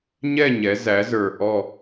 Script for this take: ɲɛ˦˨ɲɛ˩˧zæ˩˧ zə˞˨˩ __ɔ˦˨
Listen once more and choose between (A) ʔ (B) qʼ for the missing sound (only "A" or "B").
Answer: A